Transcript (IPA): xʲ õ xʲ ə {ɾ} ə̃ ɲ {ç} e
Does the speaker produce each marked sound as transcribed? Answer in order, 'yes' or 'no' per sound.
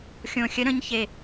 yes, yes

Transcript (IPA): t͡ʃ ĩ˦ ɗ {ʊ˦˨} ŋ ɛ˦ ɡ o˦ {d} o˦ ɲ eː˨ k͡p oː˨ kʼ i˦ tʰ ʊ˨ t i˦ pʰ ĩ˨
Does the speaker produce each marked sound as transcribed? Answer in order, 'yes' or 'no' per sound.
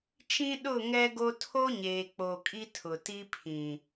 yes, no

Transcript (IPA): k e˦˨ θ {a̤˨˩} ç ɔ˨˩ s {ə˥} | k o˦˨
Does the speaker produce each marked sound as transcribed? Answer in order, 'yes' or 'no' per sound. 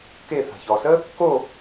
yes, yes

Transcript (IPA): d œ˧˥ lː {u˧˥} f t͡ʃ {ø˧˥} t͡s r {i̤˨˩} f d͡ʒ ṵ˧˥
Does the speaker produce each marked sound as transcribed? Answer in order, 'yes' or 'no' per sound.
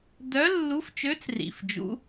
yes, yes, no

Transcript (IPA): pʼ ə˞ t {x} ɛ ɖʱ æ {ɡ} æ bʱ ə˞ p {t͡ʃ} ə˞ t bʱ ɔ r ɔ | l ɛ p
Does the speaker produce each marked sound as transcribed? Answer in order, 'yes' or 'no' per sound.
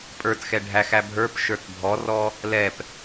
yes, no, no

